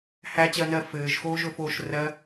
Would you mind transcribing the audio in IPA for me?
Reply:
h æ t͡ɕ ɜ n ɜ f ɘː ʒ x oː ʒ ɵ f oː ʃ r ɜ

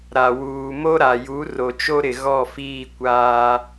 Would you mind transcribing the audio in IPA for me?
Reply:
ɾ a˨ w uː˨ m o˦ ɾ a˨ j u˨˦ r o˨ t͡ʃ o˦ ɾ ɪ˨ ɣ ɔ˦˨ f iː˦˨ kʷ aː˦

